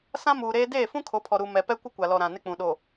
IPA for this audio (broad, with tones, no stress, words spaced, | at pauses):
sã˦muː˨ɾeː˦ deː˦˨ fũ˦kʰo˨˦pʰɔ˨ ɾu˨ mɛ˨pɛ˦kʷɪ˦ kʷa˨lɔ˨ɾã˨ nɪ˦k͡pũ˨ ɗo˨